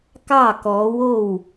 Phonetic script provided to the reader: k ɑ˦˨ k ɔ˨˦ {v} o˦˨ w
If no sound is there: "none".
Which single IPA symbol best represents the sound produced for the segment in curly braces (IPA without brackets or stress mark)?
w